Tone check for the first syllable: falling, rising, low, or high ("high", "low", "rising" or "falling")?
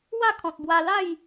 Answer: falling